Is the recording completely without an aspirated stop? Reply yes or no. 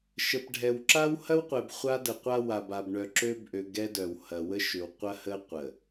yes